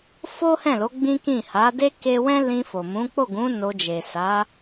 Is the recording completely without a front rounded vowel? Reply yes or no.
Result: yes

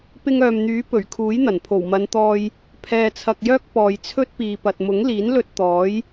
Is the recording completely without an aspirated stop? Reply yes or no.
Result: no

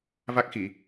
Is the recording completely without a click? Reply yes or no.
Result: yes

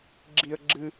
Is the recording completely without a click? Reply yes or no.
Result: no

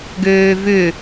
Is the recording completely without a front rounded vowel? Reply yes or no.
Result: no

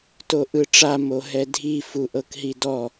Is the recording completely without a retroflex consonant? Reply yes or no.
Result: no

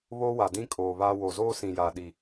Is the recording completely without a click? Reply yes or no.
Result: yes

